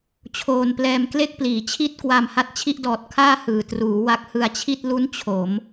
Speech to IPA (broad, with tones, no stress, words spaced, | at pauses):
t͡ɕʰoː˧nplɛː˧mkle˥˩k̚pliː˩˦ t͡ɕʰi˥˩t̚kwa˧m ha˦˥t̚t͡ɕʰi˥˩ʔdɔː˨˩t̚ kʰaː˥˩hɯː˩˦truː˩˦ wa˦˥k̚hɯ˧a̯t͡ɕʰi˥˩t̚ lu˦˥n t͡ɕʰo˩˦m